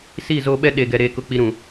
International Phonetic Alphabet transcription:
s i˦˨ z o˦ ɓ ɛ˦ ɗ e˨ ɡ ɛ˨ ɾ eː˦ k ʊ˦ k͡p i˦ ɾ ũ˨

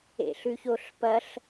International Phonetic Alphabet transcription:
ḛ ɬ ʉ ç o ɬ p ɐ ɬ

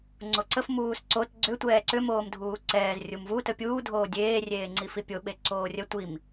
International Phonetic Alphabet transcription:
ŋ͡ǀ o ǀ ə f m uː s ǀ o t ɡ͡ǀ ʏ tʷ ɛː ǀ ʏ m oː m dʱ uː ǀ ɛː z rʲ u m v u t ə pʲ uː dʱ oː dʲ eː rʲ eː ŋ͡ǀ i f i pʲ o ɓ e ǀ oː rʲ ə tʷ i m

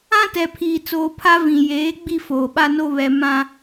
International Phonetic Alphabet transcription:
ã˦ t ɛ˨ pʰ iː˨ t͡s oː˨ pʰ a˦ v ĩ˨ j eː˨˦ ɡ͡b i˦ f oː˨ ɓ a˦ n o˦ β ɛ˨ m ã˦

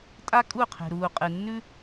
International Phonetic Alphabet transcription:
tʼ a˦ kʼ u˦˨ qʰ e̤˨ ɾ uː˨ qʼ ɨ˨ nː ʉ˦

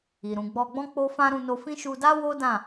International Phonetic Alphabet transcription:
i˨ ɾ ũ˨ ɡ͡b ɔ˧ ɡ͡b ɔ̃˦ k͡p o˦ f ã˦ ɾ ũ˧ n o˧ f ĩ˦ ʃ u˧ d a˦ w o˦ d ã˦˨

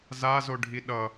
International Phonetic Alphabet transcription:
z a z o ɖʱ i ɗ ʌ

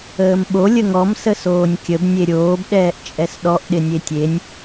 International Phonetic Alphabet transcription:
əː m ɓ o lʲ ə ŋ ɔ m s ə s oː nʲ kʲ ə b nʲ e ɾʲ oː b ɗ ɛː ʔ t͡ʃʼ ɛ s ɗ ɔ ʔ ɗ ɪ nʲ e tʲ e nʲ

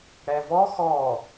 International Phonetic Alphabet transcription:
ɽ ɛ v ɔ x ɔ

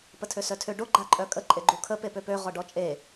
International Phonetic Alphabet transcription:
p ə tʰ ø s œ tʰ ø ɖ o ɡ͡ǃ a ǃʼ œ kʼ ə ǃʼ e ɡ͡ǃ u kʰ ə p e p ø p ø ʁ ɔ ɖ ɔ t͡ʃʼ e

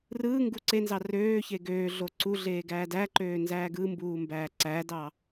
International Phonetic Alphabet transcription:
r ɯː ŋ ɡ u ǀ e n z ɑ r øː ç e ɡ øː ɮ o ǀ u ɮ eː ɡ æː d æ ǃ øː n z æː ɡ ɯ m b uː m b æː ǀ æ d ɑ

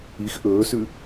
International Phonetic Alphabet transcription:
i x ʔ ɵː s ʉ

